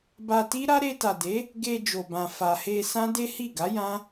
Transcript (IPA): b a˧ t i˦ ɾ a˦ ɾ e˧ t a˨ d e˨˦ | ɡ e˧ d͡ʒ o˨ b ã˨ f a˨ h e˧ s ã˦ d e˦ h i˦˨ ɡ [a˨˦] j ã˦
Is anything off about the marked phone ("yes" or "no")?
no